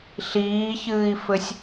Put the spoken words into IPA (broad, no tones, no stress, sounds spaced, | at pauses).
ɬ iː ç ɨː i̯ f ɘ sʲ